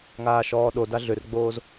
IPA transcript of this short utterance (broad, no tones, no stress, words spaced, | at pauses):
ŋaːʃɔːɗoda ɮʏrɡ͡boːz